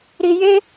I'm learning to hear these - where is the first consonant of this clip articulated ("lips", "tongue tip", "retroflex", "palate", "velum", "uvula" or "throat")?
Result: tongue tip